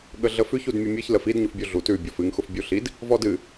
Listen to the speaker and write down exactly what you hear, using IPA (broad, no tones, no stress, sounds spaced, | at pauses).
ɠ ə ɮ ə f ʉ ç u d mʲ ə mʲ ɨ ç l ə f i d ɲ ʊ f bʲ u ɮ u t ʉ bʲ ɔ f ɨ ŋ x ʊ f bʲ u ɬ i d | v ɔ d ɨ